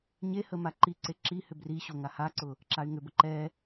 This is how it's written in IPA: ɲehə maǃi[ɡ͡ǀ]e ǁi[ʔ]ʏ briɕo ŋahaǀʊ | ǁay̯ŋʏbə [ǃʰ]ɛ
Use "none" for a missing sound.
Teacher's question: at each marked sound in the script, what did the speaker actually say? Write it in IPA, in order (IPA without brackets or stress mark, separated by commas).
ǀ, h, ǃ